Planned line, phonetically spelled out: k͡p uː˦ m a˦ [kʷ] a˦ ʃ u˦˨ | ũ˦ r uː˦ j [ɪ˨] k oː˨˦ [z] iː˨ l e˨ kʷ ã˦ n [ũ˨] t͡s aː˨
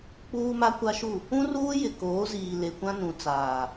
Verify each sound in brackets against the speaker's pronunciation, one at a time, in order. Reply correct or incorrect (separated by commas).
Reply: correct, correct, correct, correct